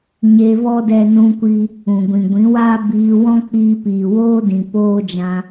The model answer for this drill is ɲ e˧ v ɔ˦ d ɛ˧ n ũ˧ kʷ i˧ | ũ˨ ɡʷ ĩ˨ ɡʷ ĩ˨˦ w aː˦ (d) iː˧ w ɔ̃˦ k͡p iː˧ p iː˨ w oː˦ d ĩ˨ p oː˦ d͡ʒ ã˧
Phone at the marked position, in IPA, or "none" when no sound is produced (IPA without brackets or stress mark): b